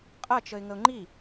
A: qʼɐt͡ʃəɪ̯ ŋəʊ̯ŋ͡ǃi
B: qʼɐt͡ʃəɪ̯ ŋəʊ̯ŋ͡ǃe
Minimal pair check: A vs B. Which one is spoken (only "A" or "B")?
A